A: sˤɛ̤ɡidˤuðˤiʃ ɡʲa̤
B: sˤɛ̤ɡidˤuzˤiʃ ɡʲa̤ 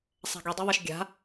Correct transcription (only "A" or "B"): A